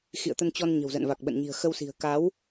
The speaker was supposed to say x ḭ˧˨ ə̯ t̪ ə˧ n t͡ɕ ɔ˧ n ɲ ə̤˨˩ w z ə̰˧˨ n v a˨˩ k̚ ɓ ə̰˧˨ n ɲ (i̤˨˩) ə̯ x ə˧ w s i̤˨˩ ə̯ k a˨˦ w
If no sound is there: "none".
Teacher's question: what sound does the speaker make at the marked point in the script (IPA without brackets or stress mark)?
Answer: i̤˨˩